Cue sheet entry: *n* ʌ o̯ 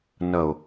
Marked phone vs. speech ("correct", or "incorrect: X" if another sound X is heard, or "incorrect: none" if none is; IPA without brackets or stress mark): correct